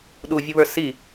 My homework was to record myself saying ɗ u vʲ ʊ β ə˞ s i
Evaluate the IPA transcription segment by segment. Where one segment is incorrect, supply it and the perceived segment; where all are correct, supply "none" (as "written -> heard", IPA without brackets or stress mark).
none